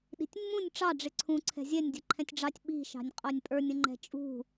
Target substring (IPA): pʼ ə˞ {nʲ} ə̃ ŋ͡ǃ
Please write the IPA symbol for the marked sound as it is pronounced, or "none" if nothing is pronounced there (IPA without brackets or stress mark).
nʲ